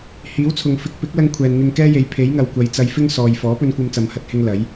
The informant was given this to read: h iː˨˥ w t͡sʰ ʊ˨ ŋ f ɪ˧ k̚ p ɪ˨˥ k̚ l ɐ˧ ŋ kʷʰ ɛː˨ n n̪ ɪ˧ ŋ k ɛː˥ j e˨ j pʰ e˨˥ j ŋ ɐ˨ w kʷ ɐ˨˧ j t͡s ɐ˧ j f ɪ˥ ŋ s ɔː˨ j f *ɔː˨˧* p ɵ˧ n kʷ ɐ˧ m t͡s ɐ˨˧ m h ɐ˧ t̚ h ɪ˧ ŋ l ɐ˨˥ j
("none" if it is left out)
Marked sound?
ɔː˨˥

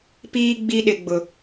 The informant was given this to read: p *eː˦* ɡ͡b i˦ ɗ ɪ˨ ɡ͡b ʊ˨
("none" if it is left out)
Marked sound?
iː˦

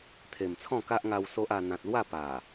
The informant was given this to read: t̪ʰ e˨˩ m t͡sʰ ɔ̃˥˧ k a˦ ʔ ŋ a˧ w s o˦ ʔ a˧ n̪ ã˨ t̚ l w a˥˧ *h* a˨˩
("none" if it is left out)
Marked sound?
p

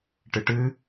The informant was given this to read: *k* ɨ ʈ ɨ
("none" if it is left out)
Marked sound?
ʈ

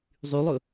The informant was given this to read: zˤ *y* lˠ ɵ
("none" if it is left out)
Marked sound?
y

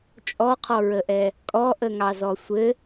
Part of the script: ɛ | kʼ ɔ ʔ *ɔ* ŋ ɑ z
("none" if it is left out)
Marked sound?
ə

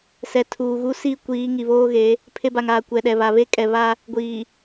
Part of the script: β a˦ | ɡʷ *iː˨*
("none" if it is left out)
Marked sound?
iː˨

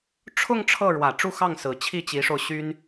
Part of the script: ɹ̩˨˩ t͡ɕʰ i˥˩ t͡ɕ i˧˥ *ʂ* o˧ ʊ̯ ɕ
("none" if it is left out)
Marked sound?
ʂ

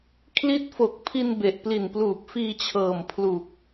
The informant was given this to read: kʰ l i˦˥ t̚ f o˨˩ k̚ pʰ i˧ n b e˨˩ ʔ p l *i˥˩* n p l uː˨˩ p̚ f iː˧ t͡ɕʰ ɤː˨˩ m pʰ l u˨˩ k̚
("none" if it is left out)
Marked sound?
i˨˩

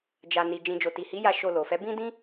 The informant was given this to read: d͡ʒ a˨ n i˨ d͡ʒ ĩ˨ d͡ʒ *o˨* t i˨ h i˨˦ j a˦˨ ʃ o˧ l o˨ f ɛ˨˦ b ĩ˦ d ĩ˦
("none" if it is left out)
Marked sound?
o˨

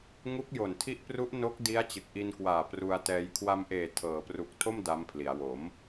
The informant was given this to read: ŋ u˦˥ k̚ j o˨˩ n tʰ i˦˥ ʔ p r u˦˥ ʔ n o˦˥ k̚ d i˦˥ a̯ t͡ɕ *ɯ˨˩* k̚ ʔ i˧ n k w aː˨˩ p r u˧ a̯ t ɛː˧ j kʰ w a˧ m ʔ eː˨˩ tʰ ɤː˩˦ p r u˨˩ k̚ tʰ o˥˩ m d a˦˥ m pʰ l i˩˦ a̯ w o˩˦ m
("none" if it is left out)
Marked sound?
ɯ˨˩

